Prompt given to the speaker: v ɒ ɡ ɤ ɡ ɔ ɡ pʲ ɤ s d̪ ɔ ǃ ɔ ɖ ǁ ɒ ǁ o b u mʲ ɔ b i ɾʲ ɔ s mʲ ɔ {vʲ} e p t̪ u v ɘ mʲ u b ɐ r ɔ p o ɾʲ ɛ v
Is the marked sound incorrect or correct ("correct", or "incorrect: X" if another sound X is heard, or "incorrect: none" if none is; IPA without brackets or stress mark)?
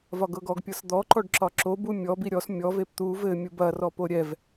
incorrect: v